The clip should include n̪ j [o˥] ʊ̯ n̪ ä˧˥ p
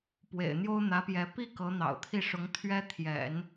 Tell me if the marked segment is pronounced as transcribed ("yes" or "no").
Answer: yes